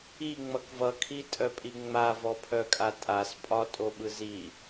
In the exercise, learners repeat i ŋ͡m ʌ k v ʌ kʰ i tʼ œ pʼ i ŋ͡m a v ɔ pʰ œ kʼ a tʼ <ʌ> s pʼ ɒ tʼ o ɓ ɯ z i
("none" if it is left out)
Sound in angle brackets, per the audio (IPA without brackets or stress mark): a